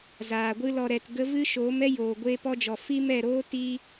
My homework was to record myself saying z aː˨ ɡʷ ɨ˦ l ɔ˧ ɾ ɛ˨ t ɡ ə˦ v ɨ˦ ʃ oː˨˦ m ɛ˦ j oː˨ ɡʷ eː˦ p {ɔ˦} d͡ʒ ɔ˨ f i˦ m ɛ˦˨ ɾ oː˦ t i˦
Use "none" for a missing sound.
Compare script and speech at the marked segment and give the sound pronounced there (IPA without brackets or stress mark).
ɔ˦